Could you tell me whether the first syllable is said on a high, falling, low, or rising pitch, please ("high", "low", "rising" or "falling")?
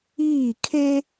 falling